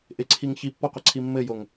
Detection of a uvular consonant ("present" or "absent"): present